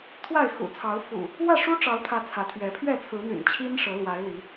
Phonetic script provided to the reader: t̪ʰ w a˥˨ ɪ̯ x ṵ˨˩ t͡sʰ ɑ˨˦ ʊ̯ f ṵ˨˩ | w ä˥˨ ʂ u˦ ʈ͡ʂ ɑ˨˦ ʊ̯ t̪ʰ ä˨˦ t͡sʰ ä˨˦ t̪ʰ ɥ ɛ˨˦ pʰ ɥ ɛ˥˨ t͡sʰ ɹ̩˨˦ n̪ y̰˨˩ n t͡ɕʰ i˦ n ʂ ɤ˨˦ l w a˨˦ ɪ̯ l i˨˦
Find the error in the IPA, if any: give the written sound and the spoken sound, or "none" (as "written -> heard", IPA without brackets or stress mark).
none